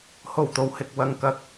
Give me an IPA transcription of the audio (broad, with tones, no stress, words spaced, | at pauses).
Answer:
ho˨˩wt̪o˨whɪ˨k̚ wɐ˨ŋkɐ˨˥k̚